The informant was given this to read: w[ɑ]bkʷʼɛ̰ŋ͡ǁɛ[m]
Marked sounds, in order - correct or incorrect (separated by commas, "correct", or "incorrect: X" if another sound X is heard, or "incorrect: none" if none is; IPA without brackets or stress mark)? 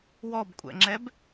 incorrect: ɔ, incorrect: b